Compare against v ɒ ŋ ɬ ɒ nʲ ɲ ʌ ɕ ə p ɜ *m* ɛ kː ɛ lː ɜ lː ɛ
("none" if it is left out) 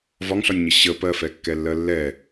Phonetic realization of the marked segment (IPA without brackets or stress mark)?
f